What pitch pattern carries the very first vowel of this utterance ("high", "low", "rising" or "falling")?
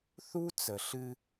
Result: high